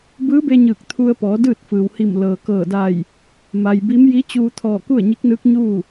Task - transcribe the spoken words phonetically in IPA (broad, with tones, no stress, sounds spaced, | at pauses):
b ɯː˧˥ b e˧ ɲ ɯː˧˩ k̚ t̪ʰ u˧ ə̯ p ɔː˩˧ d ɯː˥˨ t̚ f ɯː˩ w h i˧˩ m l ɤː˩ k ɤː˧˩ d a˧˩ j | m a˩ j b i˧˥ m j i˧˥ t͡ɕ uː˧ t̪ʰ ɔː˧˩ k u˥˨ ə̯ ɲ i˧˥ k̚ n ɯː˧˥ k̚ ɲ uː˥˨